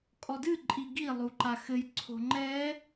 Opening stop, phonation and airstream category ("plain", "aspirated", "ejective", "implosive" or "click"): ejective